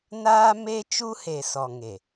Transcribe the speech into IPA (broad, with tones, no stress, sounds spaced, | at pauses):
n aː˦ m e˦ t͡ʃ u˦ h e˨ s ɔ˨ ŋ e˨